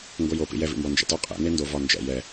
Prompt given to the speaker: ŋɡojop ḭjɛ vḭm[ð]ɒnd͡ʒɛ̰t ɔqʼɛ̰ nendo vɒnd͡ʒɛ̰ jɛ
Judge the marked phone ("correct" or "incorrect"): incorrect